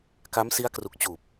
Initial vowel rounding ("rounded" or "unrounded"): unrounded